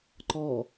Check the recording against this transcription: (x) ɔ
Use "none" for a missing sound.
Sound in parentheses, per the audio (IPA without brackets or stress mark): ǃ